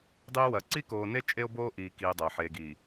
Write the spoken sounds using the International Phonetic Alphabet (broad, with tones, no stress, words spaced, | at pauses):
dˤiː˦wɐ˨ ǀi˦koː˨ne˦ t͡ʃʼe˦o̯boː˦ʔiː˨ kiː˨ dˤɐː˨ħeː˨ɡiː˨